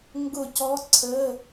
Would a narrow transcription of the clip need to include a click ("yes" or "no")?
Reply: yes